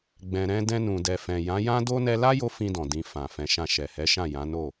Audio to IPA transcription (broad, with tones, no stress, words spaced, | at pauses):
ɡ͡bɛ̃˨ɾɛ̃˧ dɛ̃˧nũ˨dɛ˨fɛ̃˨ jã˨˦jã˦do˦ nɛ˧la˦ jo˦fĩ˧dɔ̃˨ dĩ˨ fã˨fɛ̃˨˦ʃã˧ ʃɛ˨hɛ˨˦ʃã˦˨ jã˨˦no˦˨